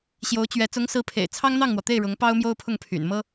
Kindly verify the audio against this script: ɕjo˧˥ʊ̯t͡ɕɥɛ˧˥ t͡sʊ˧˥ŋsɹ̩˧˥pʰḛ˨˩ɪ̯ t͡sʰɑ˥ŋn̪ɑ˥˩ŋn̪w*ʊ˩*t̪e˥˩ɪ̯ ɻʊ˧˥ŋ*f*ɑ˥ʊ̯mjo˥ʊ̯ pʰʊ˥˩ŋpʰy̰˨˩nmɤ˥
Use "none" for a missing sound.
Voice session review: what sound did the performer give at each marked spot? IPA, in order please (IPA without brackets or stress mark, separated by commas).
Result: ɔ˩, p